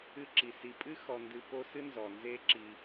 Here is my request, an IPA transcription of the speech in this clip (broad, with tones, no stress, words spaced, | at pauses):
ɨ˦ǁi˩si˨ pʼɨ˥ xɔ˨ndɨ˨po˦sɨ˥ nzɔ˩nze˦ǁi˨